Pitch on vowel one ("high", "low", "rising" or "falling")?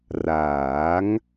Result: rising